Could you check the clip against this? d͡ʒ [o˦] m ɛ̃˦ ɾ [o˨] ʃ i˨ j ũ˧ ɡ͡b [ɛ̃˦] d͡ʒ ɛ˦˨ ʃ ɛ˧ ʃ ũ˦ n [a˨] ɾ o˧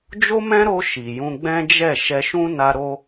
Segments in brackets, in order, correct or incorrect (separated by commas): correct, incorrect, correct, incorrect